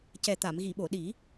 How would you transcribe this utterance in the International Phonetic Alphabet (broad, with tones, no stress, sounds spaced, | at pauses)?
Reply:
c ɛ˨˩ t̪ a˨˩˨ m ɣ i˨˩˨ ɓ o˨˩˨ ɗ i˨˩˦